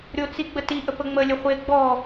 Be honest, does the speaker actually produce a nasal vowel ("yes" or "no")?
no